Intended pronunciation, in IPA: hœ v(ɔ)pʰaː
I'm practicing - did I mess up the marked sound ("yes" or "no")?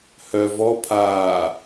no